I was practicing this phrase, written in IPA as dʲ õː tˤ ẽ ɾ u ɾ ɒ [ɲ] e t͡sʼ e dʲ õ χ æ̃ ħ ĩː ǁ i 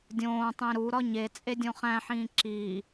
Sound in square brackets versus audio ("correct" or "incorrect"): correct